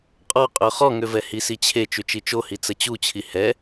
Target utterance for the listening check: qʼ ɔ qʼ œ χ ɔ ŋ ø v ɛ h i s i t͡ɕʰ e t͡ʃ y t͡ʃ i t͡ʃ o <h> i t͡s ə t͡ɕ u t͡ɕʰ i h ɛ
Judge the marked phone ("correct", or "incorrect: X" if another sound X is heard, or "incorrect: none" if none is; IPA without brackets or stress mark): correct